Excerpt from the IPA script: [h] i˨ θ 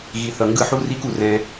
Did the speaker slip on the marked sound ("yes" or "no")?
yes